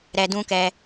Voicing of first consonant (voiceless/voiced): voiced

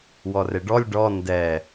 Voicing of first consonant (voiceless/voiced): voiced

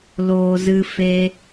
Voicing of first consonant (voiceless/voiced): voiced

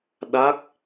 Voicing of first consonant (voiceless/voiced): voiced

